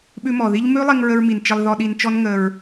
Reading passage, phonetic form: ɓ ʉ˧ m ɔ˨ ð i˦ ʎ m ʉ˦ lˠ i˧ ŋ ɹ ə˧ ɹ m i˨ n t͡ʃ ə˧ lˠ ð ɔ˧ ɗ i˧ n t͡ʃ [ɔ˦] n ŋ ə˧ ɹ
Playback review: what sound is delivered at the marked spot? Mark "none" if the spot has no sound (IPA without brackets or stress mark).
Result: ɔ˦